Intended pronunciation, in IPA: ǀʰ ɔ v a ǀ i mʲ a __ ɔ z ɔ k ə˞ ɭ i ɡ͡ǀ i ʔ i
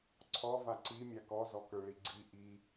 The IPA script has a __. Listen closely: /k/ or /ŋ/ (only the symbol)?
k